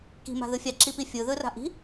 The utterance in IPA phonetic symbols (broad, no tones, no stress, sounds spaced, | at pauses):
k i̤ m a̤ ð ɯ fʲ a ǁ i p i fʲ ɯ ð ɯ r a̤ ʔ i̤